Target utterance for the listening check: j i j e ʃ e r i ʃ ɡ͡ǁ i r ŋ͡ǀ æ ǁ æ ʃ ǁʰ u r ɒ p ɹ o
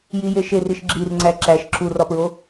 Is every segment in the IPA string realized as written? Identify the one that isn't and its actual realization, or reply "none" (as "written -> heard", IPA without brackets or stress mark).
none